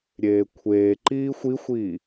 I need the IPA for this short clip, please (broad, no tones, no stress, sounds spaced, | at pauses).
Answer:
ɾʲ eː kʷʰ eː ǃ iː xʷ i xʷ iː